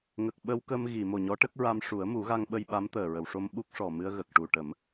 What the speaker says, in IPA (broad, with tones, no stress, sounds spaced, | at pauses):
ŋ ə˨˩ k̚ ɓ ə˧ w k ə˧ m ɣ i˨˩˨ m o˨˩ ɲ ɔ˧˥ ʈ ə˦˥ k̚ ɹ a˧ m ʂ u˨˩˦ ə̯ m u˨˩˦ ɣ a˧ ŋ ɓ ə˧ j ɓ a˧˥ m t̪ əː˨˩ ɹ ə˨˩˨ w ʂ o˧ m ɓ u˦˥ k̚ ʂ ɔ˨˩ m ɨ˧ ə̯ ɣ ə˨˩ k̚ ʈ u˨˩ ʈ ə˨˩˦ m